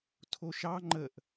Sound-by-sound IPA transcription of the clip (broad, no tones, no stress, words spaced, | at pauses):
tʰoʃɑ ŋ͡ǃəʔ